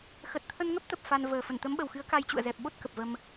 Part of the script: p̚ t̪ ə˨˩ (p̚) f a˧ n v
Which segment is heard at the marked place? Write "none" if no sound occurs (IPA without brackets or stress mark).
p̚